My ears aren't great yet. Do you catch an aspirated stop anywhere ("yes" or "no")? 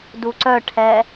yes